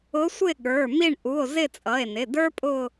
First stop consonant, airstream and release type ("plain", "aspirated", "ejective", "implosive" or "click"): implosive